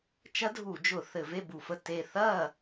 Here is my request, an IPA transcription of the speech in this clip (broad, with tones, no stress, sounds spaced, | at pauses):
t͡ʃ ɐ˦˥ dʱ u˧˩˧ d͡ʒ ʊ˧˩˧ θ ɘ˧˩˧ v e˥˨ b u˧˩˧ f ə˧˩ t e˧˩ θ ɐ˥˨